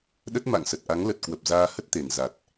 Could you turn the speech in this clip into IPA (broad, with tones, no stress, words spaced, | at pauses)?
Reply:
ɗə˦˥t̚ma̰˧˨ŋsə˨˩t̚ʔa˨˦ŋ lə˨˩t̚kwə˨˩p̚ zaː˧hə˦˥t̚t̪e˨˩n za˨˩t̚